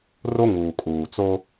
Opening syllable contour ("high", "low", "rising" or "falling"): high